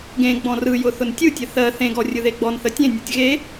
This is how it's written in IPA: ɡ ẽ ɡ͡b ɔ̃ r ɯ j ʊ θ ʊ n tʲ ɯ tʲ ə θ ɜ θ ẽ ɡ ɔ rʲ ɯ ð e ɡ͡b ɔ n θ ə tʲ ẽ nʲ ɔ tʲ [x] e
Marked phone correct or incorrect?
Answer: incorrect